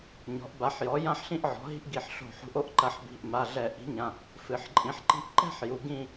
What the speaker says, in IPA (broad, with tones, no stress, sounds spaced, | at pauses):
ɲ ɔ̤˩˥ ʔ b a˩˥ ħ j ɔ˩˥ j ã˥ ħ ɬ ĩ˥ ʔ ʕ ɔ̤˩˥ ɦ i̤˥ ʔ ɡ i˧˩˧ ħ ɬ o̤˧˩˧ ħ ṳ˩˥ ʔ o˥ ʔ ǃ ɐ˧˩˧ ħ b i̤˩˧˩ ʔ m a˩˧˩ ɮ ɛ˧˩˧ ʔ i̤˩˥ ɲ ã˩˧˩ | f ɨ˩˧ ħ ǃʼ ĩ˩˥ ħ ǃ i̤˥ ʔ ǃ ɛ̤˥˧ ħ j u˩˧ ɡ ĩ˥˧